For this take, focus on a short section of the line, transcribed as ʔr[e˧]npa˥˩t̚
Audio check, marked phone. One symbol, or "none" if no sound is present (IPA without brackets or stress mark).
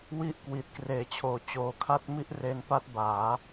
e˧